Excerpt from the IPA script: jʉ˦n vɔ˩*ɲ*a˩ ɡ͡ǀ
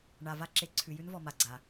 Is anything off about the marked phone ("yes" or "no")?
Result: yes